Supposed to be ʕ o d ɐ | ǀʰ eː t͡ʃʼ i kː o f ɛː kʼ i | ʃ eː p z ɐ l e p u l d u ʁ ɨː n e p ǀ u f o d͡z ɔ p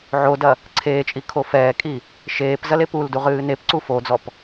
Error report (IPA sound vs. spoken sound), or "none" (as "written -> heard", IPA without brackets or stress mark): kː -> kʰ